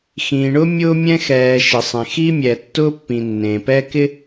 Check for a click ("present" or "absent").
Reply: absent